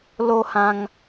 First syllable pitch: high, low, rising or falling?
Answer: high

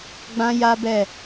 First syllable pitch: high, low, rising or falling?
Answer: high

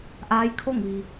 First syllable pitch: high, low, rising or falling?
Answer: rising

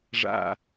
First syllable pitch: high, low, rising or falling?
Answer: low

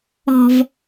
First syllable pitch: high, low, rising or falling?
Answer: low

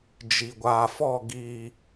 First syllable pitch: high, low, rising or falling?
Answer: low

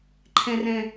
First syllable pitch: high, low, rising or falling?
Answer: high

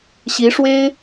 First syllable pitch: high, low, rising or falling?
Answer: rising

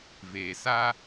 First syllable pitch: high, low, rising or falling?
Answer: low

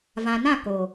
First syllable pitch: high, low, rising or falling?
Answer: low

